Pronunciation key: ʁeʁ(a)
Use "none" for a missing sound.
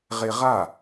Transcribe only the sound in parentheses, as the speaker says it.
a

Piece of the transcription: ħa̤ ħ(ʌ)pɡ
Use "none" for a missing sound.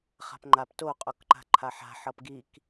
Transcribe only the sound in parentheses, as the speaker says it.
ʌ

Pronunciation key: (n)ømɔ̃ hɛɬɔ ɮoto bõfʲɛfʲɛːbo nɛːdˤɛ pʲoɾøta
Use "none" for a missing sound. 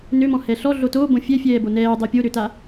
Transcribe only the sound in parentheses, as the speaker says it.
n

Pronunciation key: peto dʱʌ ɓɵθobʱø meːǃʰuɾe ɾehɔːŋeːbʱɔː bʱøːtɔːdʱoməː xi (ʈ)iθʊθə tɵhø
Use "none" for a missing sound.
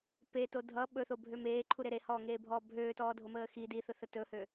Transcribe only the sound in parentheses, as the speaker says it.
d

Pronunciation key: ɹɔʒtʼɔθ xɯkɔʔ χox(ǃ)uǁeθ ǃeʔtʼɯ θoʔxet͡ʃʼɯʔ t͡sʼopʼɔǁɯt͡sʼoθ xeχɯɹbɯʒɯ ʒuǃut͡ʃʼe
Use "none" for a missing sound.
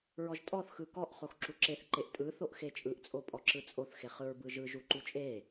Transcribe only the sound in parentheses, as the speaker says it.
ǁ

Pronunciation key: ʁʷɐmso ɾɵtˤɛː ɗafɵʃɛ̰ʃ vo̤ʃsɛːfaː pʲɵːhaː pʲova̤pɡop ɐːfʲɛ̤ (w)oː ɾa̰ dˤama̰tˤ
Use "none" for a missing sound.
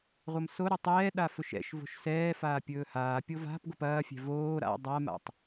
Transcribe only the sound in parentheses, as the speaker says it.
v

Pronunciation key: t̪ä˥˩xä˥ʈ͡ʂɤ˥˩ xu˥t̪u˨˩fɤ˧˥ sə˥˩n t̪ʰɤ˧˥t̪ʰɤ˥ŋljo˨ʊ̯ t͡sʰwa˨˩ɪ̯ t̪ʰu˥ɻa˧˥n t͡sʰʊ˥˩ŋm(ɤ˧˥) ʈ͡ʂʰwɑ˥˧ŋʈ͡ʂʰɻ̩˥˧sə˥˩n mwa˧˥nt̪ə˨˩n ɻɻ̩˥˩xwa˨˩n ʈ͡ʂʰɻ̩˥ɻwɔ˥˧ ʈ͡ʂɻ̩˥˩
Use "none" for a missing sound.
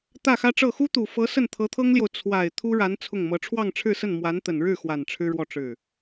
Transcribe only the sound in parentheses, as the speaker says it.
ɤ˧˥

